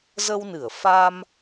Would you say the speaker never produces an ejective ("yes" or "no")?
yes